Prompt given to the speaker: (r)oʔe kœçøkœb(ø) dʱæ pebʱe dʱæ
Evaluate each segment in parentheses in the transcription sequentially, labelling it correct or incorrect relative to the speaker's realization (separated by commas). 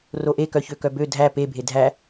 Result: correct, correct